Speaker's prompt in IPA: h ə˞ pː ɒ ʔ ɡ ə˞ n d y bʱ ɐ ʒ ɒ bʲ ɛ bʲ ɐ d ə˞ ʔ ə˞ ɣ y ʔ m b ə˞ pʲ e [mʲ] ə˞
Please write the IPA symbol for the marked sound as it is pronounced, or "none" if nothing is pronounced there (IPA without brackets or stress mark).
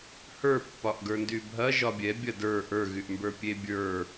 bʲ